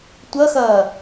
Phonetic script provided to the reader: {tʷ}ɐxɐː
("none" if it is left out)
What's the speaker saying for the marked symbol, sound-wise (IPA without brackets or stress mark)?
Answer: tʷ